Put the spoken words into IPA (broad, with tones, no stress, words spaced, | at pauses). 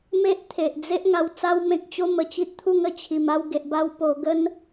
me˦ʔt̪ʰe˨ʔ d͡ze˦ʔ ŋa˧wt͡sa˦wmẽ˦k̚ t͡ɕo˦mə˨˩t͡ɕi˦t̚t̪ʰu˥˧ŋ ə˧t͡ɕʰi˨˩ma˥˧w ɡe˨ʔba˧w po˧ ɡə˦n